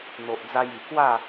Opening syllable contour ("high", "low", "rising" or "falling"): low